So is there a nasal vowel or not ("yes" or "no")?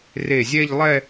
no